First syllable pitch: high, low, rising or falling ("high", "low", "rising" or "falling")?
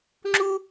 high